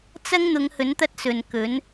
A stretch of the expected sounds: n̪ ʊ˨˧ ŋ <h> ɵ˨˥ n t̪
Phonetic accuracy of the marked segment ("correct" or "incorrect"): correct